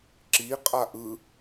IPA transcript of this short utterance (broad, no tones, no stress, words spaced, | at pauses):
ǁi qʼaʔɯ